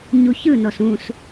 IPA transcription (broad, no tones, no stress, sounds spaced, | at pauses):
ɲ u ç ɯ n ɔ s ũ s